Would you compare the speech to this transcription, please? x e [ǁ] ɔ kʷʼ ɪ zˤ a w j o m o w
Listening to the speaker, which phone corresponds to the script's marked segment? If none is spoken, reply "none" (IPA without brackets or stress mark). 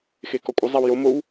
k